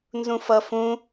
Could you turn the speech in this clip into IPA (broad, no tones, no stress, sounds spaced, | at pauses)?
n z ũ f ʌ f ũ